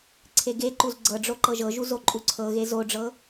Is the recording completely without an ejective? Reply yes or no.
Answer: no